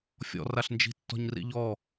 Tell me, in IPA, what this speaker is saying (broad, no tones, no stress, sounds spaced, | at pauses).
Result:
fʲ ɔ̰ r a ɬ n d͡ʒ i̤ tː ɔ̤ ɲ r ḭ ʎ ɔ